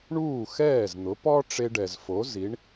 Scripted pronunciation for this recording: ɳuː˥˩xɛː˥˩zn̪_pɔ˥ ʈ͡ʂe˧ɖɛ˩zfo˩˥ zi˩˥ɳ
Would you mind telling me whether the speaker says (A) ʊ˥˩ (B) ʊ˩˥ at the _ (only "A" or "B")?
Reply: B